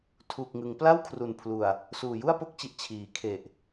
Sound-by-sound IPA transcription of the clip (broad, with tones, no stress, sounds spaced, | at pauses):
tʰ uː˨˩ k̚ ŋ ɯ˩˦ ŋ p l a˥˩ w kʰ r u˨˩ n pʰ l u˨˩ a̯ | s uː˨˩ j u˥˩ a̯ p o˦˥ k̚ t͡ɕ i˨˩ ʔ t͡ɕʰ iː˩˦ kʰ e˨˩ ʔ